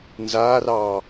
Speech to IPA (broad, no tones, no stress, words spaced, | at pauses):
nzaːrɑː